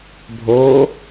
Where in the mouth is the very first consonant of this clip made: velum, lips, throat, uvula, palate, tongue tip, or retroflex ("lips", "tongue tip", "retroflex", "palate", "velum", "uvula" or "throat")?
lips